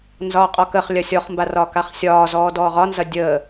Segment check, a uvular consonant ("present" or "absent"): present